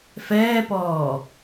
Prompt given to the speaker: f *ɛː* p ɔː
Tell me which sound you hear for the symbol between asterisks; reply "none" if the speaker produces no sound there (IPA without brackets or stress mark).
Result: ɛː